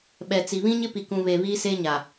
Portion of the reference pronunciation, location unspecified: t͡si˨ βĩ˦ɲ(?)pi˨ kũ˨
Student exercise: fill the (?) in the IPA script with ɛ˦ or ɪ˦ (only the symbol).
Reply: ɪ˦